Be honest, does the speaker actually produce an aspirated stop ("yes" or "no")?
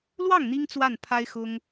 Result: yes